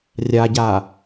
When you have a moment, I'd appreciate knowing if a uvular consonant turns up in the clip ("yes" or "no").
no